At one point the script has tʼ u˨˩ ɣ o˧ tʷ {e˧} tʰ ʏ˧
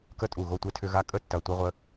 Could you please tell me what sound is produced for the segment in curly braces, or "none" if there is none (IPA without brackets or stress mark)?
e˧